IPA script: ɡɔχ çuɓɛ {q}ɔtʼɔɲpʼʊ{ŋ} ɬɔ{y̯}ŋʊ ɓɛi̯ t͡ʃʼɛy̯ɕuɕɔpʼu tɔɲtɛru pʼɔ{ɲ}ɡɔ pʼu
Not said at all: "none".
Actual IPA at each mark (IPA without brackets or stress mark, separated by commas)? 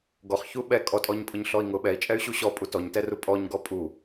kʼ, ɲ, i̯, ɲ